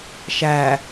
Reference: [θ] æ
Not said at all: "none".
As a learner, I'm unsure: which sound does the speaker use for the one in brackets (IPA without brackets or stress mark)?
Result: ʃ